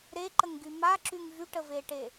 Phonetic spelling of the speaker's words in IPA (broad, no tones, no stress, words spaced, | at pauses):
ɾeǃəŋɡy maǁyŋ vyʈəveʈe